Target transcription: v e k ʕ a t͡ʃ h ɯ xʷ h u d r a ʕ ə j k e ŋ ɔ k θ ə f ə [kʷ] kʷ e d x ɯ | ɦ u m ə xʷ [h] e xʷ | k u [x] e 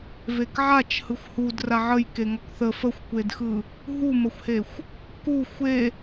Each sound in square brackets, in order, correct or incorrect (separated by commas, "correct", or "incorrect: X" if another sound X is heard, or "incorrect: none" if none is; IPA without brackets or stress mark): incorrect: xʷ, correct, incorrect: xʷ